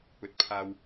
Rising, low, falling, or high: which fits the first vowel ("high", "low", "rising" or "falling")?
low